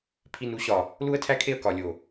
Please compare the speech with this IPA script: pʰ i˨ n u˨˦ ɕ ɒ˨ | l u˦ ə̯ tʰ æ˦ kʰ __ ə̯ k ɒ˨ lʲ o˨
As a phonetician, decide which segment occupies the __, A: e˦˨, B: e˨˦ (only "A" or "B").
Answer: A